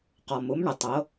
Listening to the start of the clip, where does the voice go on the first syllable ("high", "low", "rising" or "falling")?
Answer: low